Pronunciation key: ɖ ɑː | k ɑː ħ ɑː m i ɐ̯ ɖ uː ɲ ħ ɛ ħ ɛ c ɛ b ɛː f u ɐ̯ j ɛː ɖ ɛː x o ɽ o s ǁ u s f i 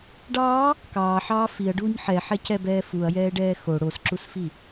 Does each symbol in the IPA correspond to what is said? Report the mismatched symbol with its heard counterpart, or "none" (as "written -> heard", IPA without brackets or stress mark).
m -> f